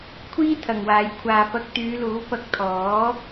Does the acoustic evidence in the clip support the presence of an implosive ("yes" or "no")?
no